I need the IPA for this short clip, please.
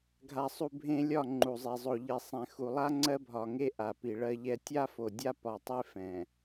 ɡʱ a˨ sˤ u˨ bʱ ẽ˦ lʲ ɒ˦˨ ŋ͡ǃ u˨ zˤ e˨ zˤ o˨ ʎ i˨ sˤ ɛ̃˨ x u˨ lˠ a˦ ŋ͡ǀ ɜ˦ bʱ ɒ˨ ŋ e˦ ʔ a˨ p i˨ ɭ ɜ˦ ʎ ɛ˦ tʲ a˦ f o˨ dʲ a˦ p ɒ˨ tˤ e˦ f ɛ̃˨

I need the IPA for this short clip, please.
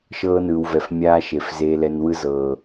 ʃ ɤː˧ n ɯː˨ w v ɛ˨ f mʲ aː˧ ʃ e˨ f z eː˨ l ɛ˨ n w ɯ˧ z ɤː˨

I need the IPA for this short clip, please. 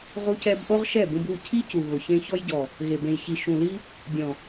ʁ u˧ c ɛ˧ b ʔ o˦ ʁ ʃ ɛ˦˨ b ũ˧ b u˦˨ cʰ i˦ c u˨ ɣ ʊ˨ ç ẽ˧ ç ɔ˧ j ɟ ɔ˨ | ɣ e˨ b ẽ˨ j ç i˨ ʃ ũ˨ l i˧ | dʲ ɔ̃˨

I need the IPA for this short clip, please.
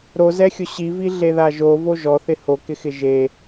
ɾ o z ɛ xʲ ʊ ɕ i v i ɮ e ð a ʒ o v o ʒ ɔ θ ɪ h o k ɪ x ɪ ʒ e

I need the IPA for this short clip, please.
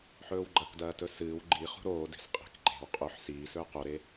ħ ɵː w ɡ͡ǃ ɐ k d ɐː t ɵ s ɨː w ɡ͡ǃ i χ ṳ ɾ oː d e̤ s qʼ e̤ k ǃ e̤ w qʼ ɵ ħ s iː s ɵː q o ɾ e

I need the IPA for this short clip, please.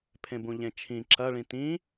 pʰ ẽ b ũ ʎ ẽ t͡ʃʰ ĩ ǁ ɐ ɭ ĩ t ĩ

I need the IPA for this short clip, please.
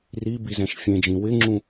r i b i z ɛ̃ ʃ fʲ ẽ d͡ʒ ĩ w ɪ ŋ͡ǁ ũ

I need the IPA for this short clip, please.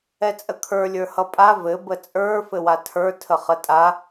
ɛ t͡sʼ ə kʰ ə˞ lʲ ə˞ h ʌ pʼ a v ɘ b ə t͡sʼ ə˞ f ɘ w a tʰ ə˞ tʰ ə χ ə tʼ a

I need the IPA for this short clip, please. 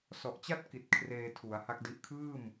s ɔ˨˩ ʔ t͡ɕ a˥˩ t̚ k i˨˩ t̚ kʰ r eː˧ tʰ u˩˦ a̯ h a˦˥ k̚ d i˦˥ ʔ kʰ ɯː˥˩ m

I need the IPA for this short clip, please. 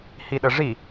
h i ɗ ə ʐ i

